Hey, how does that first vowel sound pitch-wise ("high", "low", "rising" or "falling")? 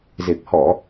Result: low